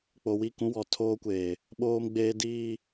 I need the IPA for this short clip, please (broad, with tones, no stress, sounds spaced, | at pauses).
k͡p o˨ w i˦˨ k ũ˦ w ɔ˨ tʰ oː˦ kʷ eː˨ | ɓ oː˦ m ɡ͡b eː˦ d iː˦